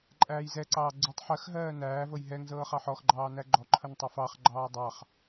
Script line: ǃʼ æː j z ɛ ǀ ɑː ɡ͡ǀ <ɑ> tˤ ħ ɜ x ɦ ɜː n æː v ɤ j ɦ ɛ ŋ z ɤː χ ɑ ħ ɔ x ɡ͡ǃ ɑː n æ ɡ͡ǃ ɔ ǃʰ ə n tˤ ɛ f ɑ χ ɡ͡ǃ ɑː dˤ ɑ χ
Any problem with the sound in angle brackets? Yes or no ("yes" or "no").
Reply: yes